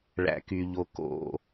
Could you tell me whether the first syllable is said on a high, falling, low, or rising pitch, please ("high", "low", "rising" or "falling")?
low